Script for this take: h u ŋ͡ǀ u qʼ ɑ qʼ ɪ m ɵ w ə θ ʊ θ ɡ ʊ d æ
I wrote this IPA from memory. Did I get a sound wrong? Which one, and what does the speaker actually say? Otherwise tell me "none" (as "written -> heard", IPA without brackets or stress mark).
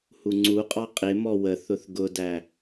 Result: ɵ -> ɔ